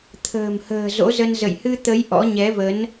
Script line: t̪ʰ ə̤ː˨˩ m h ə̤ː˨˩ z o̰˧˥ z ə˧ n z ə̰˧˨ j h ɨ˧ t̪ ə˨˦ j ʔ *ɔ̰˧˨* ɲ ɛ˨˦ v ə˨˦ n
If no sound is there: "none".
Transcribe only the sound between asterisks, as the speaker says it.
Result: ɔ̰˧˥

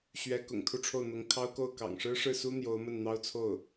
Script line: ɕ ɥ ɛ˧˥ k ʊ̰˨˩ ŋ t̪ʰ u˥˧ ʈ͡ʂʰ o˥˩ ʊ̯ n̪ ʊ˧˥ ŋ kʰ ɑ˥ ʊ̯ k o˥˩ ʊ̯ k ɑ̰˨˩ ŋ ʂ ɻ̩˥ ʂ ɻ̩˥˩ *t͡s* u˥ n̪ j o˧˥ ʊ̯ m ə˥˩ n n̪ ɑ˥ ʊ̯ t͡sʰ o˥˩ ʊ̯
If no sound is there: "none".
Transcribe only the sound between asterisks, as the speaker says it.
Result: s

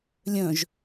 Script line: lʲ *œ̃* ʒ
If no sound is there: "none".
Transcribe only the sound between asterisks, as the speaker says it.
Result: œ̃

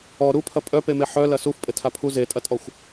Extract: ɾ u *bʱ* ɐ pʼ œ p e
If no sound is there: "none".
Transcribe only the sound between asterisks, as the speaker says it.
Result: pʰ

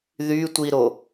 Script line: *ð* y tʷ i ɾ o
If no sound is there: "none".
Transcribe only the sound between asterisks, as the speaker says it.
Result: ð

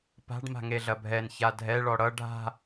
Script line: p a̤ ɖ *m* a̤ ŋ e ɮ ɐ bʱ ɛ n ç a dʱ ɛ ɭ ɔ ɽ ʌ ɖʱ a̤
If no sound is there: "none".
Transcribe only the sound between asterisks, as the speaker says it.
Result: m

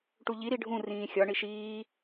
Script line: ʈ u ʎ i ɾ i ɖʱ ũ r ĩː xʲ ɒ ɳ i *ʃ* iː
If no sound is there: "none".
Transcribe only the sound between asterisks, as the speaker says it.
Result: ʃ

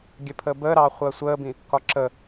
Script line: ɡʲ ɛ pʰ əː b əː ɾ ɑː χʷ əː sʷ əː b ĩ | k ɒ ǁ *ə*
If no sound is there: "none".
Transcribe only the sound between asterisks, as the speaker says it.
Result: ə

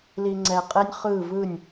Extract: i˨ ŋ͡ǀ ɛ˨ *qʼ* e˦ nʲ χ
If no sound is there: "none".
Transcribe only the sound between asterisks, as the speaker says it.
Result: qʼ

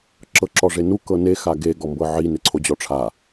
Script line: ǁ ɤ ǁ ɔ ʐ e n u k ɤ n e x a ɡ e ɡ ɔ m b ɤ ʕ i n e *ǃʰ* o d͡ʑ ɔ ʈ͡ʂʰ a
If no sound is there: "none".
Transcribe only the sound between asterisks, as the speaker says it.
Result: ǀʰ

